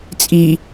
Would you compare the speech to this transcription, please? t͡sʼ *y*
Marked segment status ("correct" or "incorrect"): incorrect